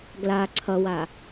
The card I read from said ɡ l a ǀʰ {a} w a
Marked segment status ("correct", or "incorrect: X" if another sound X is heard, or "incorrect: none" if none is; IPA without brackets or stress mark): incorrect: ʌ